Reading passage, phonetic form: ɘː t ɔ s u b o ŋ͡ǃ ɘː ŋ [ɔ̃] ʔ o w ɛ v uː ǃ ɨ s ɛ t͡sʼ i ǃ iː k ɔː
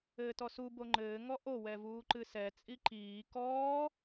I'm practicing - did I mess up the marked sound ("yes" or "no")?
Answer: yes